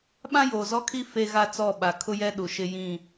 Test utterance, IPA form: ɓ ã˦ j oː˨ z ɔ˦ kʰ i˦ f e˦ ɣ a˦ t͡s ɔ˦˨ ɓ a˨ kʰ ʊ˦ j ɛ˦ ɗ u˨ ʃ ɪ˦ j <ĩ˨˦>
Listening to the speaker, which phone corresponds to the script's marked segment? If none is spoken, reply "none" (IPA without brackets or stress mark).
ĩ˦˨